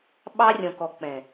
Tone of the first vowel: high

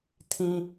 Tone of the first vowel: low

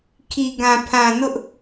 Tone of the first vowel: low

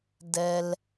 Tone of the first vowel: low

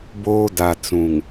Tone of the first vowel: high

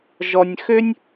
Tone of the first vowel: low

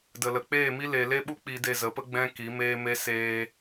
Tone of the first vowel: low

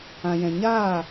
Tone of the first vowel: low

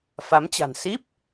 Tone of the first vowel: rising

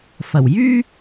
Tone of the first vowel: low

